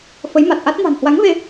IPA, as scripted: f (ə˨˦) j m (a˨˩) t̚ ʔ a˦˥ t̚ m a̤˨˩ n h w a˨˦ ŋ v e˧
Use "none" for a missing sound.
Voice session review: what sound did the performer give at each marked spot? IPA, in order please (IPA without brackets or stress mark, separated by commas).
ə˨˦, a˨˩